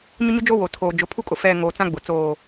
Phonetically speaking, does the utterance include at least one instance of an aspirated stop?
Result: yes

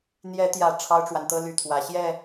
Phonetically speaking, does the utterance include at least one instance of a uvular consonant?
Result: no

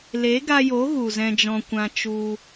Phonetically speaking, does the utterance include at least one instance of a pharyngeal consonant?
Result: no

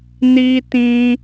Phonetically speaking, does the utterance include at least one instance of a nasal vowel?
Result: yes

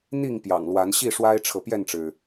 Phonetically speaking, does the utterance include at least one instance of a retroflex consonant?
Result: yes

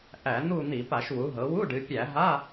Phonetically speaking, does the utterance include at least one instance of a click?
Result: no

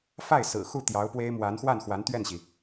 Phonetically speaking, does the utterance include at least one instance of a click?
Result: no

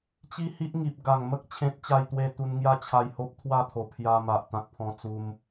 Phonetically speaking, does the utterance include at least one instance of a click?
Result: no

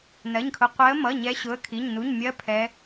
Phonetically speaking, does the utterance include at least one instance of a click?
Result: no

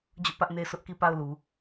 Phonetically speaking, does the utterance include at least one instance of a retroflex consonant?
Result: no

